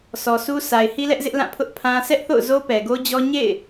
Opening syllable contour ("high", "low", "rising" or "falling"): low